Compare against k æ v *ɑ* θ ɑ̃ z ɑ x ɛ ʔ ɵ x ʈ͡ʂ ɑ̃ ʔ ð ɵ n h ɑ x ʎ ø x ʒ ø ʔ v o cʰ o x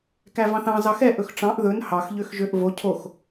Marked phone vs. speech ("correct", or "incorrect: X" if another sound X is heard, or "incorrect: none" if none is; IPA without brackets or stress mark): incorrect: ɑ̃